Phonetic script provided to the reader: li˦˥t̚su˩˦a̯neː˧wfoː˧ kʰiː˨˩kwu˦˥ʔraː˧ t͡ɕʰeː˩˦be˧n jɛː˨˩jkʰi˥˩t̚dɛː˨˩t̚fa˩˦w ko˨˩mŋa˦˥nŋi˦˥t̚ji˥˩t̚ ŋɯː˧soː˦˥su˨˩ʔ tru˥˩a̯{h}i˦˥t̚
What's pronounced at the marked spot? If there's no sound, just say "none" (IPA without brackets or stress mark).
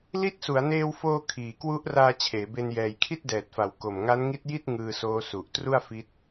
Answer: f